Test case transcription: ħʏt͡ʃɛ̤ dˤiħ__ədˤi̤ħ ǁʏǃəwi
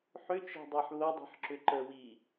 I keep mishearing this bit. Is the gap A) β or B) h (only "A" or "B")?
A